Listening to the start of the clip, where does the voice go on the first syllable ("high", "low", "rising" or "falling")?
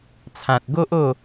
low